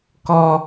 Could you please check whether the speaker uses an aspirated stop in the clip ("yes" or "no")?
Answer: no